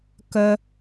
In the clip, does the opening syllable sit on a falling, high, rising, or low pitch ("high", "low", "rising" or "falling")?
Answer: high